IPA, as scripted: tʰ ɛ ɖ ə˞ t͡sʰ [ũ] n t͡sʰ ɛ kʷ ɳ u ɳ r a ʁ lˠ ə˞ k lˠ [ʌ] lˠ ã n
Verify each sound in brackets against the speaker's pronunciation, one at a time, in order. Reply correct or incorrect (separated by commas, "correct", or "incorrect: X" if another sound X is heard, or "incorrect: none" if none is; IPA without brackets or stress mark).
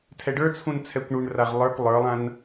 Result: correct, incorrect: ə˞